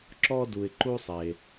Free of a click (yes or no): no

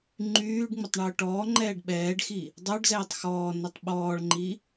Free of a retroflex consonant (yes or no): no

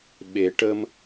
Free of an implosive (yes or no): no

